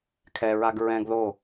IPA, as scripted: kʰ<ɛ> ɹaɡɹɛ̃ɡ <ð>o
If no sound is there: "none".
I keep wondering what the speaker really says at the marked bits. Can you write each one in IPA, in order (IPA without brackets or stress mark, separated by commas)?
ɛ, ð